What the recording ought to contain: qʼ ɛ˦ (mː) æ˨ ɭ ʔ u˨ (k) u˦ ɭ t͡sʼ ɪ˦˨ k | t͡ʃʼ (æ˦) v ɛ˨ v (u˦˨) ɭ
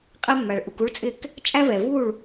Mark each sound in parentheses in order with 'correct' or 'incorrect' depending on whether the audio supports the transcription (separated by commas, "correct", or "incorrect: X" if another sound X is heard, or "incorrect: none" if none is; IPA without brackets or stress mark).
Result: correct, correct, correct, correct